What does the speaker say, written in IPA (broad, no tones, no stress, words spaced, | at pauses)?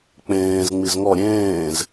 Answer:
k͡pẽːz ŋ͡mizŋɔ ɾʲẽːz